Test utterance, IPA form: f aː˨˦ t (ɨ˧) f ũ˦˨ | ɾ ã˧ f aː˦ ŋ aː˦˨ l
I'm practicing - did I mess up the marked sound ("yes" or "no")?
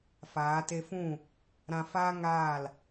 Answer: yes